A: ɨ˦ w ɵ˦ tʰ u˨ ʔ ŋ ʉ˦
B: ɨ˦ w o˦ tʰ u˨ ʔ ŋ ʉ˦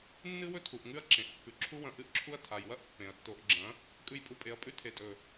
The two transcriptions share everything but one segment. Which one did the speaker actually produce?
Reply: A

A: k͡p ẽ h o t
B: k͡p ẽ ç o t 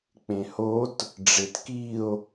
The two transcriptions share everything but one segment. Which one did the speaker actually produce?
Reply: A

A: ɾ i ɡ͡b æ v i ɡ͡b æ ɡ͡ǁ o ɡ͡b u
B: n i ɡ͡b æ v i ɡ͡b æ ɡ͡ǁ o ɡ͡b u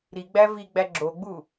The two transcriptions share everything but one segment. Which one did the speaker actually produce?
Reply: A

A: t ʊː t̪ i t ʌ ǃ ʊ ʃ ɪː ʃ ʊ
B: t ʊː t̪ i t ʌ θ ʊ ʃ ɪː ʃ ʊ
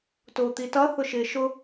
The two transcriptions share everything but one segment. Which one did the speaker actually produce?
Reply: B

